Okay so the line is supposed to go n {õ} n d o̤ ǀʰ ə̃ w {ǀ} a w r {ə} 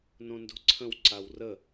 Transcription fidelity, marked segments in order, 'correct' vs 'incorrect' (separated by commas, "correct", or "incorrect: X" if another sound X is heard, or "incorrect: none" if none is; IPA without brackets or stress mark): correct, correct, correct